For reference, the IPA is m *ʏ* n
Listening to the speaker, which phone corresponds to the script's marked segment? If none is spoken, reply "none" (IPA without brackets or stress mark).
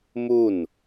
u